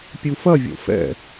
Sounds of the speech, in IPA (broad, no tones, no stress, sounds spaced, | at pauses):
pʲ u f ɐ vʲ o̰ f ɛ̰